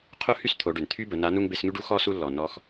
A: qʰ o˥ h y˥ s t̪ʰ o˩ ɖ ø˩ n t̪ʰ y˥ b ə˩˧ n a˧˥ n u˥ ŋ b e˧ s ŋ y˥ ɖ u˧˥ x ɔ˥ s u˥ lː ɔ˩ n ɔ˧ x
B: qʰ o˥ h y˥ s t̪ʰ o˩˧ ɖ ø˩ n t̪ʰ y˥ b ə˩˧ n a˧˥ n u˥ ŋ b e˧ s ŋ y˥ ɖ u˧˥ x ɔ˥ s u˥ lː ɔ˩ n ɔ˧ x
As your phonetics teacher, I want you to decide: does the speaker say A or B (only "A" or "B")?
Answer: B